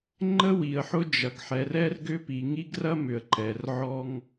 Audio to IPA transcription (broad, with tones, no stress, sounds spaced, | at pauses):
ŋ͡ǃ ə˦ w i˨ ə̯ ħ ʊ˦ d͡ʒ ɐ˨ ɡ ħ ɛ˨ r ɛ˦ r ɡ ʏ˦ p i˨ ŋ i˦ ɡ r ɐ˦ m ʏ˨ ə̯ ǃ ɛ˨ r ʕ ɔ˦ ŋ